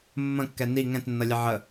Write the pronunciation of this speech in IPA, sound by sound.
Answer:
mː ə̃ kː ɛ n i ŋ ɛ̃ t nː ʌ lʲ ə ʕ ə

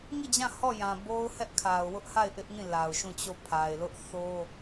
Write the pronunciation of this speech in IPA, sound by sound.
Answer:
ŋ i˦˨ d͡ʑ ã˦˨ h ɔ˦˨ j ã˨ b o˦ ʊ̯ h ɛ˦ ʔ kʰ a˨ ʊ̯ w ʊ˦ ʔ h a˦˨ ɪ̯ ʔ ɪ˦ ʔ ŋ ĩ˦˨ l a˨ ʊ̯ ʃ ũ˦˨ t͡ɕ o˦˨ pʰ a˨ ɪ̯ l ʊ˦ ʔ θ o˦

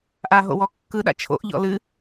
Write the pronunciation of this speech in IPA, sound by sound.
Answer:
ʔ a ɦ o̰ w ɔ kː ɯ ɗ a̰ t͡ʃʰ o̰ ʔ ʎ ɔ̰ l ɨ

